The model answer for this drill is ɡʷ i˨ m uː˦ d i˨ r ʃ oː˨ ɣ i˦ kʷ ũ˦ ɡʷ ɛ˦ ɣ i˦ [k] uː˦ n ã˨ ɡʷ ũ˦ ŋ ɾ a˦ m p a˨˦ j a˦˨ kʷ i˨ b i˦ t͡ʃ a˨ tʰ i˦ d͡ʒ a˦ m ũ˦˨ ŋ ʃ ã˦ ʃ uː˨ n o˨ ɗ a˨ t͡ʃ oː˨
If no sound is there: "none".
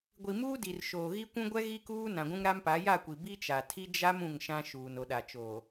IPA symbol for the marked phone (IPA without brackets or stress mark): k